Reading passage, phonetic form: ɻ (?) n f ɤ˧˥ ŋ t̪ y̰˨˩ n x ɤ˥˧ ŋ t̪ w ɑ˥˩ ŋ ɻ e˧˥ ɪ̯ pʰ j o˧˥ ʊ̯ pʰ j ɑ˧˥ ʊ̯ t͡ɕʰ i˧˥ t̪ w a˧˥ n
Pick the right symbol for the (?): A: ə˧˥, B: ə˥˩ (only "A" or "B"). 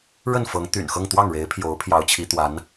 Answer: B